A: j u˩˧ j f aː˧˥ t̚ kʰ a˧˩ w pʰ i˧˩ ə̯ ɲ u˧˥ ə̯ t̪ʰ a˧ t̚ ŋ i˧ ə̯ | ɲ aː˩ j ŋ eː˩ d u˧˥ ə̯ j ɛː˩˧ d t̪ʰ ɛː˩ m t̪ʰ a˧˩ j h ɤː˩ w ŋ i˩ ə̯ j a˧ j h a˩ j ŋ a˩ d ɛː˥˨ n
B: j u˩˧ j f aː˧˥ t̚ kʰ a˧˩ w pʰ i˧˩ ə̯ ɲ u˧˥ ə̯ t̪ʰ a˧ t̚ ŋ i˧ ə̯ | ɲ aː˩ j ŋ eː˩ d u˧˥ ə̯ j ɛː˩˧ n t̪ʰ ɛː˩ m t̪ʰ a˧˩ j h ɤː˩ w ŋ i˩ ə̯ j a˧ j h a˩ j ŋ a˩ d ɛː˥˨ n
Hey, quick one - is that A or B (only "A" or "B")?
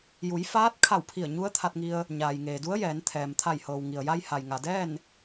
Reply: B